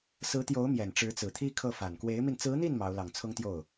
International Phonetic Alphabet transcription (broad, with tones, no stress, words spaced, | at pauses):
sɹ̩˧˥t̪jo˧˥ʊ̯ mjɛ˨˩nʈ͡ʂɻ̩˧˥t͡sɹ̩˨˩t̪ʰi˥ kʰɤ˥˩fa˨˩n kwe˧˥ɪ̯mi˧n t͡sɹ̩˧˥n̪i˥˩n mɑ˧˥ʊ̯lɑ˨˩ŋ t͡sʰʊ˥ŋt̪jo˥˩ʊ̯